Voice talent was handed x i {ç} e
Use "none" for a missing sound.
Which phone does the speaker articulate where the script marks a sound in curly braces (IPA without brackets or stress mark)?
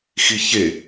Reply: ç